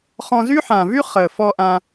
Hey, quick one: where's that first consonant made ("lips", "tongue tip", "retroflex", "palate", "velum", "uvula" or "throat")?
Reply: uvula